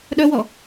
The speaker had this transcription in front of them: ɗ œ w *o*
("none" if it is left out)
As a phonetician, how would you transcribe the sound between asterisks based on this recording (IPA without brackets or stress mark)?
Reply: ɔ